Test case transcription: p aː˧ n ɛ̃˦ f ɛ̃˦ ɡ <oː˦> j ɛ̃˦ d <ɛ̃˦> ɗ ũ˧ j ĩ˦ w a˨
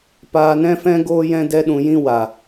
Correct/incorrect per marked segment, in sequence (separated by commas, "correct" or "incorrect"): correct, incorrect